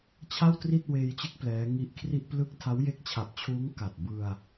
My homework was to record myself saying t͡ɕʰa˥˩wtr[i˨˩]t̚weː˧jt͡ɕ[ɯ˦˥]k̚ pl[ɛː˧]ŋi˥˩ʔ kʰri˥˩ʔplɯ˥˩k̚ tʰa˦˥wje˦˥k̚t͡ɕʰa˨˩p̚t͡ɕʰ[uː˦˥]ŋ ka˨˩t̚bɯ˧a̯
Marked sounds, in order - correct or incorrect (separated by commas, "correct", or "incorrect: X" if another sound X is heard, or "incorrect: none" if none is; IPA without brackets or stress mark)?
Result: incorrect: i˥˩, correct, incorrect: ɛː˦˥, correct